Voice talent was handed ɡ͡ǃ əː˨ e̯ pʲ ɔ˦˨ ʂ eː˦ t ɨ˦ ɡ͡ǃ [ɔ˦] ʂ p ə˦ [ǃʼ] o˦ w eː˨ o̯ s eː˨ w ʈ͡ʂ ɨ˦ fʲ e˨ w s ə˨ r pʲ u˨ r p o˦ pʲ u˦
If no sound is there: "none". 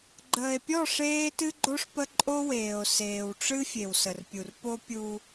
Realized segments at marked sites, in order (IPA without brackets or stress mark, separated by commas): o˦, ǃʼ